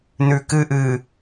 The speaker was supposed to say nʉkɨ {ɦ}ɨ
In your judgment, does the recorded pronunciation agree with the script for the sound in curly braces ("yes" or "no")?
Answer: no